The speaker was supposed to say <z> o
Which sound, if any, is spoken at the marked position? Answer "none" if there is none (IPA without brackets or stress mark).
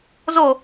z